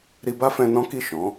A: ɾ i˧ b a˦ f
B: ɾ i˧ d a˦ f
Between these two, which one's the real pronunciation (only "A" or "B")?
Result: A